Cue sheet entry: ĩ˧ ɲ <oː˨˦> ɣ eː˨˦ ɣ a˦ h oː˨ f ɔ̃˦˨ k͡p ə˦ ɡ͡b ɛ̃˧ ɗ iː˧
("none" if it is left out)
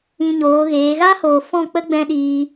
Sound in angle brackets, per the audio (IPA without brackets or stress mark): oː˨˦